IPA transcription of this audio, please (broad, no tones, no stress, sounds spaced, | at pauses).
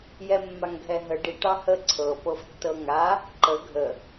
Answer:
j ɛ mː a ŋ ɡʱ ɛ ɦ ə ɖ i ʈ ɑ h ə ǀʰ ɤ p ɤ f tː ɤ ŋ a | ǃ ə ɡʱ ə